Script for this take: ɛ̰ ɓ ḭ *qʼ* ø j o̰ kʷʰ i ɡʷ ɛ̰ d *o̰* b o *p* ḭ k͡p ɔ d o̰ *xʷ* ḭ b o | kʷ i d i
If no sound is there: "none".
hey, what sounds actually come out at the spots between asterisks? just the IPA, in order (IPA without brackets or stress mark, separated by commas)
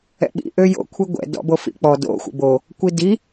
ʔ, ɔ̰, f, xʷ